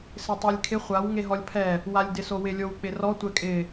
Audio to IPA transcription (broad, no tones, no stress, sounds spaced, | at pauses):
s ɪ tˤ e lʲ kʰ ɪ χʷ a w ŋ e ɦ ɔ lʲ pʰ ɛ | w a lʲ d ɪ s o w ɪ lʲ o w k͡p ɪ r ɔ tʷ ɛ kʼ ɪ